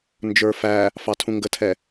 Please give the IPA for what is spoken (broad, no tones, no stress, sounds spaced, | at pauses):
n d͡ʒ ə˞ f æ | f ɑ tʰ ũ ŋ ɡ ə tʰ ɛ